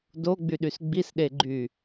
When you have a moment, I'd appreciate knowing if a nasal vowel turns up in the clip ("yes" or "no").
no